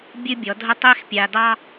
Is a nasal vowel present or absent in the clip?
absent